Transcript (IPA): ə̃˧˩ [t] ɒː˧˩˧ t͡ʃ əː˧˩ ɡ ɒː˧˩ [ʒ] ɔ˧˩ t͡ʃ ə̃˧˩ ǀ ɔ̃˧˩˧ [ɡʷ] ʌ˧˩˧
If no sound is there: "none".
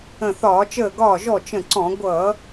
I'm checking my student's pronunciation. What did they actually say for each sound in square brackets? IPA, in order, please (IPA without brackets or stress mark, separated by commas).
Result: θ, ʒ, ɡʷ